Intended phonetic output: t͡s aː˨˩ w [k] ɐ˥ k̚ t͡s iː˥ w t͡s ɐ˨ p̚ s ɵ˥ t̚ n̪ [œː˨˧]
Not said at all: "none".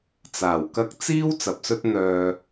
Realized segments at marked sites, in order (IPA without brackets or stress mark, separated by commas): k, œː˨